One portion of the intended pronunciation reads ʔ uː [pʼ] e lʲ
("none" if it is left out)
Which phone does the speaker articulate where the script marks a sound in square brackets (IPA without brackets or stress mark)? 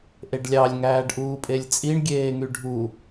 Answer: pʼ